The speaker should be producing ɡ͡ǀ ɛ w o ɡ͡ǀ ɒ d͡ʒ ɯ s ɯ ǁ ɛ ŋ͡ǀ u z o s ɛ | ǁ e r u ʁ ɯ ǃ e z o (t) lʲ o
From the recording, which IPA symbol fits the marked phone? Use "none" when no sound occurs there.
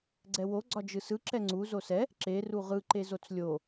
t͡s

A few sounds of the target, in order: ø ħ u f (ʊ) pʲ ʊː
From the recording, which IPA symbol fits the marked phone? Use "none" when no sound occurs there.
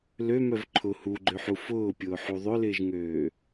ʊː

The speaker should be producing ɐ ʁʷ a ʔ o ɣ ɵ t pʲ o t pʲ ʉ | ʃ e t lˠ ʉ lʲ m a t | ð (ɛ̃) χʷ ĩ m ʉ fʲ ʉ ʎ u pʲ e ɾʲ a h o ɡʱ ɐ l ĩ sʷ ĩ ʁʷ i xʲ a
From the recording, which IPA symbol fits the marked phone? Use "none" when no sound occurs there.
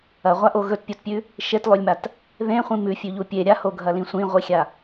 ẽ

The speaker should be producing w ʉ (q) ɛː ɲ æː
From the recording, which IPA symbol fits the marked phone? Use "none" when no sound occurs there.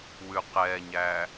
q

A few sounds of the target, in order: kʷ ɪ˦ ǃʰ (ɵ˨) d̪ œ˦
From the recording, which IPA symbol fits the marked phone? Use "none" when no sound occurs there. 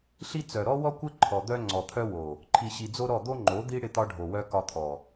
ɔ˨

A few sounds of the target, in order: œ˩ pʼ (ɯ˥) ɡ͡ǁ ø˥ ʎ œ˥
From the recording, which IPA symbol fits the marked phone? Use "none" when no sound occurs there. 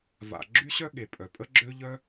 ə˥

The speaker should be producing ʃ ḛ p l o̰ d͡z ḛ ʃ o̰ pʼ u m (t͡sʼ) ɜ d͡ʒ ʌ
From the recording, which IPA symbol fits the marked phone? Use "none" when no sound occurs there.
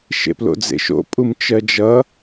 t͡ʃ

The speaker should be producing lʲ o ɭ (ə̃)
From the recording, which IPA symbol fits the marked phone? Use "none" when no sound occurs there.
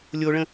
ə̃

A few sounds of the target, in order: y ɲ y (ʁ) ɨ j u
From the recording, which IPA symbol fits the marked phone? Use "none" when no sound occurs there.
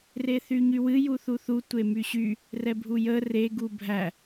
w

